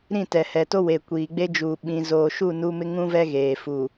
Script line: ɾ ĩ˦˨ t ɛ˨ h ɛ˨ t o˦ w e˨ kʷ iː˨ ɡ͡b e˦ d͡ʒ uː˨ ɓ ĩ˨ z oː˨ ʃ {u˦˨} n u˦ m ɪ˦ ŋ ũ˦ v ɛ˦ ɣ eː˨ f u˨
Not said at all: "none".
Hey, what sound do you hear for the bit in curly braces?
u˦˨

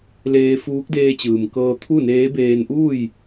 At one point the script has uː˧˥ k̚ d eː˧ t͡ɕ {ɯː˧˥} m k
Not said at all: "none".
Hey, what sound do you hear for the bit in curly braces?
ɯː˩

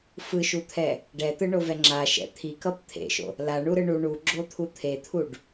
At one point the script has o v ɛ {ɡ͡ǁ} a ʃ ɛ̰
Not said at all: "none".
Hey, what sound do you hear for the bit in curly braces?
ŋ͡ǁ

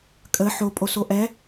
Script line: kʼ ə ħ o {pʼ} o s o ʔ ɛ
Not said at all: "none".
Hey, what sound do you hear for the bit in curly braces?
pʼ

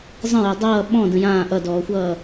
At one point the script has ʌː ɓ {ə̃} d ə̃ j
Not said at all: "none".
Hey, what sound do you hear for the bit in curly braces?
ɔ̃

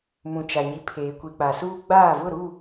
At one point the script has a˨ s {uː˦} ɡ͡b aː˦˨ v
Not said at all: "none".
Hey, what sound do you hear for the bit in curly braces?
uː˦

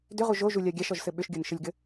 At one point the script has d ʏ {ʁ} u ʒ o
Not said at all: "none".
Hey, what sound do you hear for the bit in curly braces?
ʁ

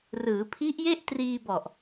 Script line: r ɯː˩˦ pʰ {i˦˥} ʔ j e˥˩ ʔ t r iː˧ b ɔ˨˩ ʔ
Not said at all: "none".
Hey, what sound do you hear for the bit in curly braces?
i˦˥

